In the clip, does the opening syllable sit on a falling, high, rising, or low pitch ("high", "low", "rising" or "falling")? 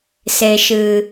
low